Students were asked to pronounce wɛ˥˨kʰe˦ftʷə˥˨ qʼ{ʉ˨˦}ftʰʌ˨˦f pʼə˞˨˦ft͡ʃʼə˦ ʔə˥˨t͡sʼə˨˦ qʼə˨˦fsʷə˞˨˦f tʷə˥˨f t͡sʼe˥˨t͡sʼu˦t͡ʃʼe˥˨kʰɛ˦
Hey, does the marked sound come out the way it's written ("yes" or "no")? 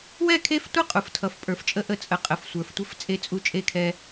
no